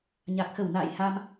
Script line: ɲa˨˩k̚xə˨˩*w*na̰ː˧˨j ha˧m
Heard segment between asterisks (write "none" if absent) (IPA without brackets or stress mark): w